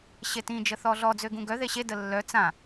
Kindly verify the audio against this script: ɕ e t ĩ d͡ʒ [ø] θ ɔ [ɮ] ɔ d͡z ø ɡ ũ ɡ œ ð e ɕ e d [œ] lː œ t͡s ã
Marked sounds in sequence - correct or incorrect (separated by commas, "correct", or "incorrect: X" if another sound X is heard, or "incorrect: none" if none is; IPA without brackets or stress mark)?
incorrect: ə, correct, incorrect: ə